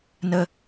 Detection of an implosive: absent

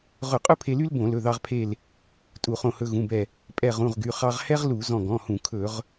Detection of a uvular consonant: present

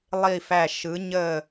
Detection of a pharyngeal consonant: absent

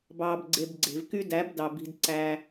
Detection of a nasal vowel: absent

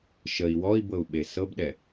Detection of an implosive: present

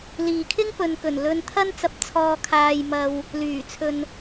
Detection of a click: absent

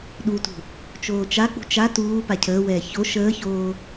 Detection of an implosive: present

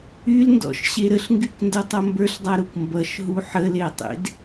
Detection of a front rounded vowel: present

